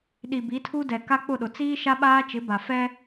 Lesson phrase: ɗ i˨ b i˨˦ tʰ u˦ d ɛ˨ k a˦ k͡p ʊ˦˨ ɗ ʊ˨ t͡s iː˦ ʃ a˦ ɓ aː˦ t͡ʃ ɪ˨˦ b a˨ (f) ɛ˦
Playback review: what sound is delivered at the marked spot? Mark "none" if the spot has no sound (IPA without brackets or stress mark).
f